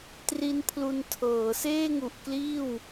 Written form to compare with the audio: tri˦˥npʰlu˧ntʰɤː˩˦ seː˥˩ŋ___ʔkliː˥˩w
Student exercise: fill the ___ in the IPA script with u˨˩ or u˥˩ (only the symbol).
u˨˩